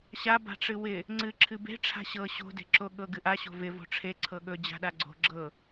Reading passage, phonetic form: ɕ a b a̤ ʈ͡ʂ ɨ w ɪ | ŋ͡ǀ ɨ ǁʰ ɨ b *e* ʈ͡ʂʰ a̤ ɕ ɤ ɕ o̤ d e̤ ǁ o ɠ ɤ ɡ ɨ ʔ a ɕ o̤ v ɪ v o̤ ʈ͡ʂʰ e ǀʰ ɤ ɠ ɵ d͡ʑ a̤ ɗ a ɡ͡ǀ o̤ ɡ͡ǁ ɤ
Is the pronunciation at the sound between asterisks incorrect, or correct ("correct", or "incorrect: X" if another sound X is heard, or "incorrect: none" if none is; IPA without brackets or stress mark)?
incorrect: e̤